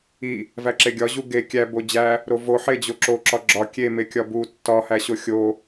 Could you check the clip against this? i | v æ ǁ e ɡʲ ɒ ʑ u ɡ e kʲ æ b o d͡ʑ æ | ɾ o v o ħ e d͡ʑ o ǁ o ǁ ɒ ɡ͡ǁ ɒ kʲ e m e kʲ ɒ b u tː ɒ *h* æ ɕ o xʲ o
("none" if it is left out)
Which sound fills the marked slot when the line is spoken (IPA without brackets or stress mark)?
h